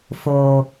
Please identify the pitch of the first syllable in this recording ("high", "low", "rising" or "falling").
low